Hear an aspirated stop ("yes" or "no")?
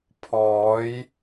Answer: yes